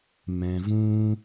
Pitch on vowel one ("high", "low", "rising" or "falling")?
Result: low